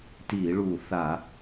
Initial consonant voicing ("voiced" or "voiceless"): voiceless